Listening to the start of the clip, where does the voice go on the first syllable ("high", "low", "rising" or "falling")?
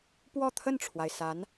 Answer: falling